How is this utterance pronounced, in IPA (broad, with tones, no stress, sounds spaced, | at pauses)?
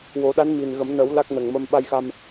w o˨˩˦ ɗ a˧˥ n m i˨˩ n ɣ ə˨˩˦ m n ə˨˩˦ w l a˦˥ k̚ n ə˨˩ ŋ m ə˧ m ɓ a˧ j x a˧ m